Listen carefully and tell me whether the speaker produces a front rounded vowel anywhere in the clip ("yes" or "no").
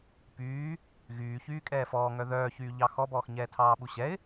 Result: yes